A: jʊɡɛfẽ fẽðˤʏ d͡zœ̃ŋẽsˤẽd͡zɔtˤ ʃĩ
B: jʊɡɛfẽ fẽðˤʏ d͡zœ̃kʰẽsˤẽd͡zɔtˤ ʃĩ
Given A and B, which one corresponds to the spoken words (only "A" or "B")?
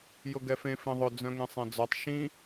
A